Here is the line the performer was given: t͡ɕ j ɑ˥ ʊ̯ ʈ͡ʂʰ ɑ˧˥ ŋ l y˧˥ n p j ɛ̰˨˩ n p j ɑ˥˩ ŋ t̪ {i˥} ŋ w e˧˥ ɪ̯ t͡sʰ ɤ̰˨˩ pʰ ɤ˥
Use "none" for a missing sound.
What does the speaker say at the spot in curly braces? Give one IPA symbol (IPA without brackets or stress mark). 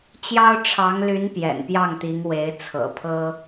i˧˥